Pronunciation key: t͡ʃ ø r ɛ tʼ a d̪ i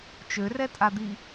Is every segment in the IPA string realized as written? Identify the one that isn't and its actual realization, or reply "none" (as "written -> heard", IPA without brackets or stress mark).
none